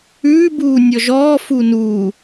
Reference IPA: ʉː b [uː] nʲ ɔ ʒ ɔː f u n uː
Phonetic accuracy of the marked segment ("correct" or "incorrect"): correct